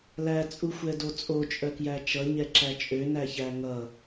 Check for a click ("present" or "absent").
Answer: present